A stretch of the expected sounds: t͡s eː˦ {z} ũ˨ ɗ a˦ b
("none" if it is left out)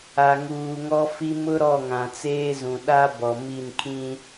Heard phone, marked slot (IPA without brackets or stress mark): z